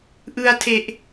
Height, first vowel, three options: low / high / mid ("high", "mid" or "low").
high